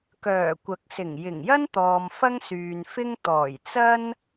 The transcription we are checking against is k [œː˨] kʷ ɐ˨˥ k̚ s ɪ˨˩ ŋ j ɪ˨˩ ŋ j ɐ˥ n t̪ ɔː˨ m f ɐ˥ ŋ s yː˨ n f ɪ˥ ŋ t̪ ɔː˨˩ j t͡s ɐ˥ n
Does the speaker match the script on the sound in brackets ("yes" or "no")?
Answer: no